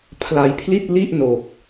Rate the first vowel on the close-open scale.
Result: open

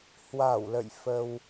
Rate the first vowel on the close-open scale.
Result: open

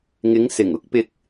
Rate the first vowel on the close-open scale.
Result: close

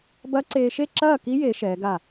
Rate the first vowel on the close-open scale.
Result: open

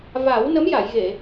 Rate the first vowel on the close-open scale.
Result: open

